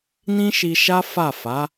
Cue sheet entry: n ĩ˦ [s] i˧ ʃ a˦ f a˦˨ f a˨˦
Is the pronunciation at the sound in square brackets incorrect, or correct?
incorrect: ʃ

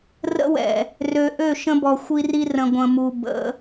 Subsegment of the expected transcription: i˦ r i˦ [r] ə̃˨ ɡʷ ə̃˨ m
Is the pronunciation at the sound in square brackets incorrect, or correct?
correct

